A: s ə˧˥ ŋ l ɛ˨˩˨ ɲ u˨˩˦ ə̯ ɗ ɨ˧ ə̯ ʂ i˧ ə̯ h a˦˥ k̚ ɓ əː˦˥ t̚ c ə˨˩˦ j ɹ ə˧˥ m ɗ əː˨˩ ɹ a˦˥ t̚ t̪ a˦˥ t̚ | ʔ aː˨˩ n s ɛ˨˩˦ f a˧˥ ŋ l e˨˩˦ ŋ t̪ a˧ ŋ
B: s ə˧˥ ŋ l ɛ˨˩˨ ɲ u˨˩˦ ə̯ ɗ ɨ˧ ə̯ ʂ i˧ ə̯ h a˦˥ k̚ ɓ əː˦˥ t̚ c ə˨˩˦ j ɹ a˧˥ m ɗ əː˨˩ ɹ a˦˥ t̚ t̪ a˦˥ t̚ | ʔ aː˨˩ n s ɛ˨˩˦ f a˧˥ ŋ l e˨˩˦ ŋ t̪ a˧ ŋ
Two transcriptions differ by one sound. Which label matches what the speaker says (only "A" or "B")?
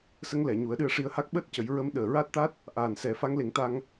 A